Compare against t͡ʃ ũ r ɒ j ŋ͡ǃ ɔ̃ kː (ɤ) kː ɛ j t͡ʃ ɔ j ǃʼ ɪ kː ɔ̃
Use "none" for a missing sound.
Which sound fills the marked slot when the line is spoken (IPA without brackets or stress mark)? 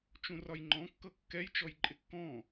ɤ